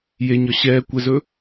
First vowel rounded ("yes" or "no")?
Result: no